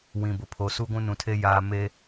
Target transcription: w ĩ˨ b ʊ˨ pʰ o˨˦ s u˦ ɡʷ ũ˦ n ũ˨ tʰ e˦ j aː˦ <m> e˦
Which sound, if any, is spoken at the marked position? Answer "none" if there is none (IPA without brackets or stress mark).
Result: m